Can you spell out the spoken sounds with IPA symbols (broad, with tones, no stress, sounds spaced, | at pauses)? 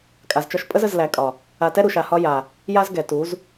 kʼ a˨ z t͡ʃ ɒ˧ ʃ pʼ ə˦ z ə˧ z l æ˨˦ kʼ ɒ˨ | a˨ t ɛ˧ ɾ u˨ ʃ a˨ h ɒ˧ j a˨ | j a˦ z ɡ ɛ˨ t u˨˦ z